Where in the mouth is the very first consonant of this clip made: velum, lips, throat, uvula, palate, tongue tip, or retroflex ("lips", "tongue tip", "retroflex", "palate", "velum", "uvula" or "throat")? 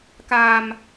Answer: velum